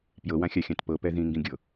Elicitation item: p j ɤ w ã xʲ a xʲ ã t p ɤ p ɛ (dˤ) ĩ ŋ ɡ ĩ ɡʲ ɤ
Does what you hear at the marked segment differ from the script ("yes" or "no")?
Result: yes